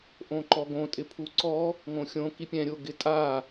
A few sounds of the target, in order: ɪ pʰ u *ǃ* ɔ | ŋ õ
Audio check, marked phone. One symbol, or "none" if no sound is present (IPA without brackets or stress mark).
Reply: ǀ